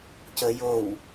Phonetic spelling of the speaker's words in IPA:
c ə j o w

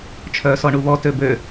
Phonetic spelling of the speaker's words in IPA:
t͡ʃʰ œː s ɔ ɳ u β ɔ t ø b ø

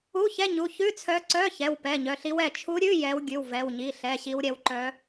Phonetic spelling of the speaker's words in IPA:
u˧˥˧ ç ɛ˧˥˧ ɲ u˩˧˩ ç ʉ˧˥˧ t͡sʰ œ˧˥ ǀ œ˧˥˧ ç ɛ˩˧˩ w p ɛ˩˧˩ ɲ œ˩˧˩ ɬ i˧˥ w ɛ˩˧˩ t͡ʃʰ u˧˥ ɾʲ ʉ˧˥˧ j ɛ˧˥ w ɡʲ ʉ˩˧˩ w v ɛ˩˧˩ w ɲ i˩˧˩ ɬ ɛ˩˧˩ ɕ i˧˥ w ɾʲ ɛ˧˥ w ǃ œ˧˥

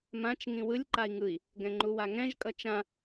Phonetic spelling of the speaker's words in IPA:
m ã t͡ʃ ŋ ĩ w ɯ lʲ ǃ a i̯ ŋ ɯ i̯ | ɡ ɛ̃ ŋ͡ǃ u w a ŋ ɛ̃ ʒ kʼ ʌ t͡ʃ ã

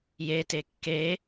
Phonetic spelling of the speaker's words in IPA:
j e t e kː e

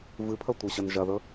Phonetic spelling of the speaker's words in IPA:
v ɨ pʰ ɐ tʷ e ɕ ɐ n ʒ ɐ ð ɵ

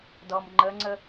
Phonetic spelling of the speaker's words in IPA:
d ɔ m ŋ͡ǃ ə ŋ͡ǀ ə

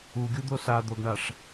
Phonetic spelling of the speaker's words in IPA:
u ɡʲ u d̪ o s a d̪ o ɡ ɳ a ʂ

